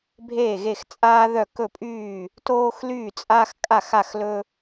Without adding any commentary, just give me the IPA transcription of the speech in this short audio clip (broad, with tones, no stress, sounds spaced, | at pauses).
bʱ eː˥˩ ɣ e˥˩ x t͡sʼ aː˦ ð œ˥˩ k ɵ˥˩ pʼ yː˥˩ | t oː˦ x l yː˥˩ t͡sʼ a˦ x kʼ a˥˩ x a˥˩ x l ɵ˦